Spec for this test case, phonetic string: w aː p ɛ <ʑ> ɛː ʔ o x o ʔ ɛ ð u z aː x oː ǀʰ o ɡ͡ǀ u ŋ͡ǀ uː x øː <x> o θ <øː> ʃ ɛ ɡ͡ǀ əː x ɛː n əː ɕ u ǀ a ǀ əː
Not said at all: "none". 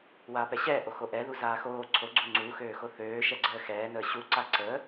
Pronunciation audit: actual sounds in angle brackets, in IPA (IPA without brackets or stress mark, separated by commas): ɕ, x, øː